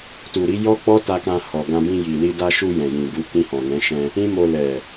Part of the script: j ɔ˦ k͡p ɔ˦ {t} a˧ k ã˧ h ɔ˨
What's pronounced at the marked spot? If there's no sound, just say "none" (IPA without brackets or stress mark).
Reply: t